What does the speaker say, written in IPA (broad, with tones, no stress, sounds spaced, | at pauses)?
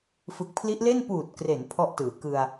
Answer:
f ɯ˨˩ k̚ pʰ l i˦˥ ʔ l e˥˩ n p uː˨˩ t̚ k r e˩˦ n pʰ ɔ˥˩ ʔ t ɯː˩˦ k ɯ˧ a̯